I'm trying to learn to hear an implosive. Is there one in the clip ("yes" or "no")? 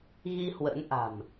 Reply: no